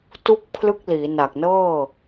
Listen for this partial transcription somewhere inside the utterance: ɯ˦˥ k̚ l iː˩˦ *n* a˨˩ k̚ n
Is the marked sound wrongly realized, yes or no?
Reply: no